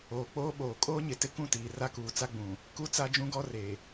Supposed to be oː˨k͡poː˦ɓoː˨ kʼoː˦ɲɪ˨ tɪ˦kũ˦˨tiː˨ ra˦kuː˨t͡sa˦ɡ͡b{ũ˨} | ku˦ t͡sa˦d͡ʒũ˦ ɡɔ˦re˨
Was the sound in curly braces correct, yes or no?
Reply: yes